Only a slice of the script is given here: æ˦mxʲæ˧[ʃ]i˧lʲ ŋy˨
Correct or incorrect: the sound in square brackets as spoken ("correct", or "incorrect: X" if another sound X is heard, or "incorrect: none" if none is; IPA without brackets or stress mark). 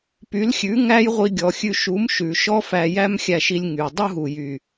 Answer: correct